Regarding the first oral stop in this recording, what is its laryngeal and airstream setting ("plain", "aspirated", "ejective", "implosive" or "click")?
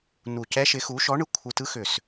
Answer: plain